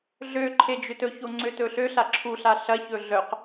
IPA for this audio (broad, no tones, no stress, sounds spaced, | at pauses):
ɮ ø ǃʰ e d͡ʒ ø t ɵ ç o ŋ͡ǀ ø t ɵ ɬ ø ɬ a ǁʰ u ɬ a ɬ ɐ ç ɵ ɮ œ q